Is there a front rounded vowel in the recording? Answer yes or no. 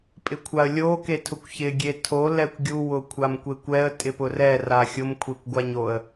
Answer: no